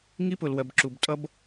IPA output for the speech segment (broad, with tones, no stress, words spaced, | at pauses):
ŋi˦pʊ˨lwɜ˨b ǁu˨btʼʌ˦b